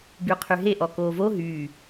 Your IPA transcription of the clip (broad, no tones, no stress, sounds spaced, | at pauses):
b y qʰ y ɦ e ʔ ɔ k oː v o ɦ y